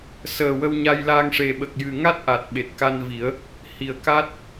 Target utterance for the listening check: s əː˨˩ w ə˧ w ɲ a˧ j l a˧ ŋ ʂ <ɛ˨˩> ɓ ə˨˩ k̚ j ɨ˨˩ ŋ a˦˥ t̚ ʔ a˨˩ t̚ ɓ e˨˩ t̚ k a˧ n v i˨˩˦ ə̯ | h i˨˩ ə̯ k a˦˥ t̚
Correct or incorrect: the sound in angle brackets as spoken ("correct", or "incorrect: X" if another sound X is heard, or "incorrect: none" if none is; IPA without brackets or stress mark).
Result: incorrect: e˨˩